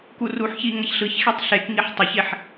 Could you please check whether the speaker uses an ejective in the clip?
no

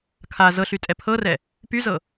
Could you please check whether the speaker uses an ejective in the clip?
yes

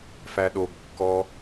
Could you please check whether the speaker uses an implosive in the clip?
yes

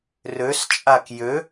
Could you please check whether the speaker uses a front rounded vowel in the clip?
yes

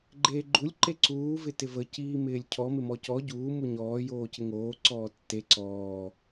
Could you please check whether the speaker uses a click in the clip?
yes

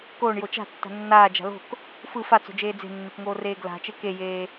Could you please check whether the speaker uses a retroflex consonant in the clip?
yes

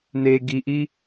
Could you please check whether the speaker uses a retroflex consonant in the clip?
no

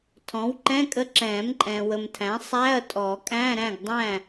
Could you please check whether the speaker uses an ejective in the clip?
yes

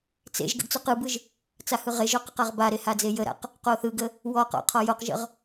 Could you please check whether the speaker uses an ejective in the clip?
no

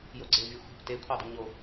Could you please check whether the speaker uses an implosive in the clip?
no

